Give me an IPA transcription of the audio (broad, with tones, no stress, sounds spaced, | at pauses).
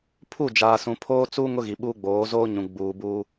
pʰ u˦˨ d͡ʒ aː˨ s ũ˨ pʰ oː˦ t͡s u˦ ŋ ʊ˦ ɣ i˨ ɓ uː˦ ɡ͡b oː˨˦ z oː˦ ɲ ũ˨ ɡ͡b uː˨ b uː˦